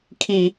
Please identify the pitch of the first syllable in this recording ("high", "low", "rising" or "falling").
high